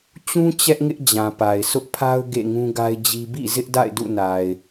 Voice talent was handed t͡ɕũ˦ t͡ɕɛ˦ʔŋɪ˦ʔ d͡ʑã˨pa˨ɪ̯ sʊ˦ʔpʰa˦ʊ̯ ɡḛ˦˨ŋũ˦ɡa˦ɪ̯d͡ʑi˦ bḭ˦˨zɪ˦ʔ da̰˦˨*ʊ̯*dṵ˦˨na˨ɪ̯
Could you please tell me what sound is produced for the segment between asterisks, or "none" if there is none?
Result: ɪ̯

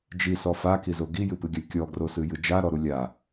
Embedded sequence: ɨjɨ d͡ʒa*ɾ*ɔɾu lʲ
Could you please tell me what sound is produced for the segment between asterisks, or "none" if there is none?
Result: ɾ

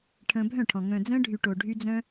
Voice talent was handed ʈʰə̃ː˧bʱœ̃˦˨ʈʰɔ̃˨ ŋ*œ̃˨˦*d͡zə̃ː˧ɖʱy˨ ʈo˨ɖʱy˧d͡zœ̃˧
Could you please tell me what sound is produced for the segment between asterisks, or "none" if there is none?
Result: œ̃˨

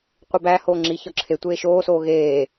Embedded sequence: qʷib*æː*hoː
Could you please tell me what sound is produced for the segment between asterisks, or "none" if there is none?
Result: æː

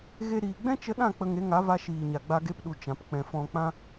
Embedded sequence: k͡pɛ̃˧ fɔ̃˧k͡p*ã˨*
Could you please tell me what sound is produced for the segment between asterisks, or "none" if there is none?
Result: ã˦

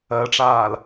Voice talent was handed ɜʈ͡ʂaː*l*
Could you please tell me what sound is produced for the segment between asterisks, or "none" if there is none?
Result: l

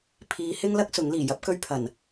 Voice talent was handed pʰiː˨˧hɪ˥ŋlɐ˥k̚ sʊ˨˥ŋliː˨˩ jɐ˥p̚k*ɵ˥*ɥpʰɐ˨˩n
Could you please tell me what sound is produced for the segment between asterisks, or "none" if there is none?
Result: ɵ˥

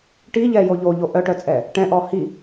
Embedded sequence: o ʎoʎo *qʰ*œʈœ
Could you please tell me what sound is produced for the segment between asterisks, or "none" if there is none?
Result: ʔ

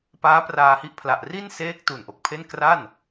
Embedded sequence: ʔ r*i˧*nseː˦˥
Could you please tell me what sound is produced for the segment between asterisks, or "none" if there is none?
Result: i˥˩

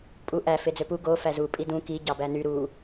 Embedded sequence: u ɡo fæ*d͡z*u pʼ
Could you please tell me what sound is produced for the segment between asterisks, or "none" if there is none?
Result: z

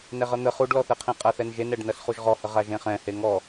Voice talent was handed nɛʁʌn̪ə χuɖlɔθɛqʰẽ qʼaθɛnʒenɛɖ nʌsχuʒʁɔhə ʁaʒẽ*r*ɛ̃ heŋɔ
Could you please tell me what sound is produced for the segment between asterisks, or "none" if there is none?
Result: χ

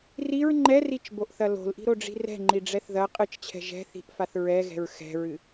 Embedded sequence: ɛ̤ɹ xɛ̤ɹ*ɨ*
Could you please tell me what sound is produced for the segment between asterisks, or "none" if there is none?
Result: ɨ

